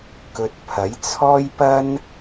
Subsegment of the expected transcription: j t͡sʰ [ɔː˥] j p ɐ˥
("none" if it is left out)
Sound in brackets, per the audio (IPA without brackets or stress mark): ɔː˥